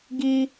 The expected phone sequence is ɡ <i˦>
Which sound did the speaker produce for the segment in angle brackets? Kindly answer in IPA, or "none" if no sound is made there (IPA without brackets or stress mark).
i˦